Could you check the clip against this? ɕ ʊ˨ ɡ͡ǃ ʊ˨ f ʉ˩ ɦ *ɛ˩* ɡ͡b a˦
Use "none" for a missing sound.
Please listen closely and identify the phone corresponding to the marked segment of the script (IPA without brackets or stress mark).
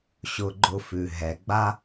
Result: ɛ˩